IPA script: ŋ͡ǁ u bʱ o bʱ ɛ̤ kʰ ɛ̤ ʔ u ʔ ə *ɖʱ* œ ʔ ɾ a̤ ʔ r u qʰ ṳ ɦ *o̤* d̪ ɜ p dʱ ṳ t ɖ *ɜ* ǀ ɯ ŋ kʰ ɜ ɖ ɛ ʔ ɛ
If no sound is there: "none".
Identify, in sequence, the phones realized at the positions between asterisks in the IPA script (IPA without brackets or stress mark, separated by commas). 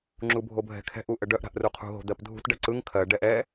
ɖ, o̤, ɜ